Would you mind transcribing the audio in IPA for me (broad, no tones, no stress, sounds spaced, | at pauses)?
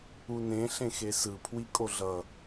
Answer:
u n ẽ ɬ ẽ x e s ɯ pʰ w i kʼ o ɮ ʌ